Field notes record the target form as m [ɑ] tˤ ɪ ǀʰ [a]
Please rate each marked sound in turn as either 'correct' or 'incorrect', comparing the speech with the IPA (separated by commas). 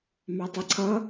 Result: correct, incorrect